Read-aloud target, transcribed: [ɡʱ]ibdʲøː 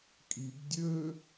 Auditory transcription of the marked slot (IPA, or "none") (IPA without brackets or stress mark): kʼ